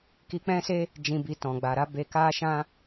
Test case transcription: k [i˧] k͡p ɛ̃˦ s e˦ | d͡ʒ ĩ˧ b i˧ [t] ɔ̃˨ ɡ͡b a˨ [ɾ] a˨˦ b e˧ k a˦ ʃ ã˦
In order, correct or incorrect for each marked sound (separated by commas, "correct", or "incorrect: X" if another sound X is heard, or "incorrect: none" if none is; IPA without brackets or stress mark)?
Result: correct, correct, correct